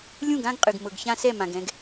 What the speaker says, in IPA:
lʲ ũ˦˨ ɡ ã˦ ɡ qʼ ɨ˨ ɡ m ɤ˨ ɡ ç ã˦ s ɛ˦˨ m ã˨ ɡ ɛ̃˦ ɡ

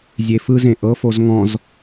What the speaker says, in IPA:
zʲ e f ɯ z ẽ ʔ ɤ f o z ŋ ɔ̃ z

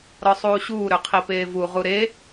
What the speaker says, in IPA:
ɾ ɔ sˤ uː ɕ uː ɾ ø qʰ i p eː v u ʁ u ɾ e

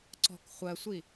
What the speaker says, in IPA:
ǀ ɔ̤ k χʷ ɜ sʷ i

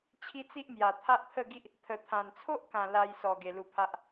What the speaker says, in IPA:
t͡ɕʰ i˦ t͡s i˦ ʔ m j a˨˩ t̪ʰ a˦ ʔ t̪ʰ ə˥˧ ɡ i˦ ʔ | t̪ʰ ə˨˩ t̪ʰ ã˨˩ n t͡sʰ o˦ ʔ k ã˨˩ l a˧ j s ɔ˨˩ ɡ e˨˩ l u˧ pʰ a˦ ʔ

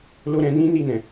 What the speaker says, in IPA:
l o˦ ɾ ɛ̃˧ n ĩ˦ n i˦˨ n ɛ̃˨

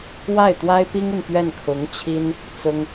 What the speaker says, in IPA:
w a˥˩ ɪ̯ t̪ w a˥ ɪ̯ p i˥ ŋ i˨ n p ɥ ɛ˥˩ n kʰ ʊ˧˥ ŋ t͡ɕʰ i˥ n | t͡s ʊ˥ ŋ

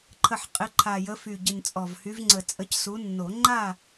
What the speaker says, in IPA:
ǃʰ ə˨˩ ħ qʼ ɪ˨˦ ǃʰ a˨˩ j ə˨˦ f y˨˩ ɟ ɪ˨˩ n t͡sʼ ɔ˨˩ v h y˨˦ v ŋ͡ǀ ə˨˩˦ t͡sʼ ə˨˦ c s u˨˦ nː o˨˩˦ ŋ͡ǃ a˥˨

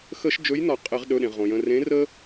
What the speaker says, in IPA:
x ə˧˩˧ ʃ d͡ʒ ɵ˨˥ j n ɒ˧˩˧ qʼ e˧˩˧ ʁ ɗ ɵ˩˧˩ ɗ ẽ˩ ʁ õ˩ j ə̃˩˧˩ r ẽ˨˥ r ə˦

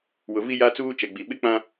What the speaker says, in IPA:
w ʊ˨ v i˦ j a˦ t͡s uː˦ t͡ʃ ɛ˨ ɡ͡b i˨ ɓ ɪ˦ k͡p ã˦

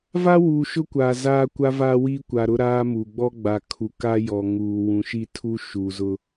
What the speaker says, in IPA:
v a˦ w uː˨ ʃ ʊ˦ kʷ aː˨ z aː˦ kʷ a˦ v aː˦ w iː˦ kʷ a˨ ɾ ʊ˦ ɾ aː˦ m u˨ ɡ͡b ɔ˦ ɡ͡b a˨ kʰ u˨ k a˦ j ɔ˨ ŋ uː˨ w ũ˨ ʃ i˦ tʰ u˦ ʃ uː˨ z ʊ˦

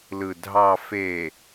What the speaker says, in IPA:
l ɯ˨ dʱ ɑ˨ f e˨

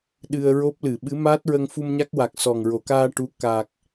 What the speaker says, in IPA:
ɗ ɨ˧ ə̯ ɹ o˦˥ p̚ l ɨ˨˩˨ ɓ ɨ˧˥ m aː˦˥ t̚ ɹ ə˧ ŋ f u˧ m ɲ a˦˥ k̚ w a˨˩ k̚ s ɔ˨˩ ŋ ɹ o˨˩˨ k aː˧ ʈ u˧˥ k a˨˩ k̚

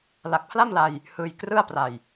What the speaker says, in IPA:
l a˨˩ k̚ pʰ l a˥˩ m l a˧ j | h ɯː˧ j k r ɯ˥˩ a̯ p r a˨˩ j

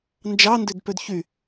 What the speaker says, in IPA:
n d͡ʒ ɑ n d ø d p ø d ç y

